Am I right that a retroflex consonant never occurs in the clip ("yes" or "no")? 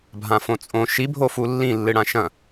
no